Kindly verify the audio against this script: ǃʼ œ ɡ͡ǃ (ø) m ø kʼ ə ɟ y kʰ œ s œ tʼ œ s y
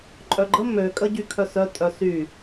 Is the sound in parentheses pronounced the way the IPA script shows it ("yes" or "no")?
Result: no